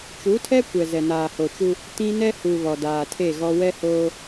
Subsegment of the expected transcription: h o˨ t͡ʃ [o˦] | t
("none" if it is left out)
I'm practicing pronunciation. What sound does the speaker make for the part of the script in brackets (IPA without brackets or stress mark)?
u˦